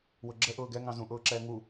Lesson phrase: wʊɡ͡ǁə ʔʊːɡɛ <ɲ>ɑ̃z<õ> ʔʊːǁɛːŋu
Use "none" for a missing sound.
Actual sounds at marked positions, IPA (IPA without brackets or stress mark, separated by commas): ŋ, ũ